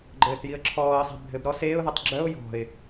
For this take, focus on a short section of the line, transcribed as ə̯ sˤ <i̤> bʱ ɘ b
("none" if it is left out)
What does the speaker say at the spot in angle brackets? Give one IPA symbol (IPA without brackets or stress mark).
e̤